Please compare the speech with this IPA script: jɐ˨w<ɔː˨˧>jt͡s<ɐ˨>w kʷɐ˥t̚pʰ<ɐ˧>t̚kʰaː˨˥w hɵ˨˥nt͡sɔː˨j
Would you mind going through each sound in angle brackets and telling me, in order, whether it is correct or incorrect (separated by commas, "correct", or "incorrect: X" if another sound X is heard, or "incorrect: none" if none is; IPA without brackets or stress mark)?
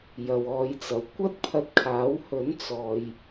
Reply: correct, correct, correct